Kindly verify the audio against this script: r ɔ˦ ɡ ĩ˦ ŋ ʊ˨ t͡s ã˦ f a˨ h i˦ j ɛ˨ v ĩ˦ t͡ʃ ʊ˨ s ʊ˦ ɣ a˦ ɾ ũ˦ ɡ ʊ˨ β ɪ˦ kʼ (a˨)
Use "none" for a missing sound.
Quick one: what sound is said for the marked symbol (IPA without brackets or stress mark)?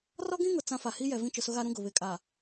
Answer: a˨